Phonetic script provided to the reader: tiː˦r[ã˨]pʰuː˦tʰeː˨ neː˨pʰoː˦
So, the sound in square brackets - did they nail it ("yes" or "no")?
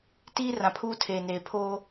yes